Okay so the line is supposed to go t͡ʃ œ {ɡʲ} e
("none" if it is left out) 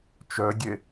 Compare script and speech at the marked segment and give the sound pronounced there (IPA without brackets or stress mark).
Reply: ɡʲ